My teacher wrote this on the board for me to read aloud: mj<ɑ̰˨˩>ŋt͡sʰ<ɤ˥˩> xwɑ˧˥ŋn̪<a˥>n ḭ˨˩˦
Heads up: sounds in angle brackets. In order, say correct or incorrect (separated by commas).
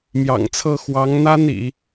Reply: correct, correct, correct